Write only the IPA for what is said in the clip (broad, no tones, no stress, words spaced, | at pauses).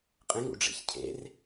qʼẽŋṵ ɖ͡ʐḛçcʰḛr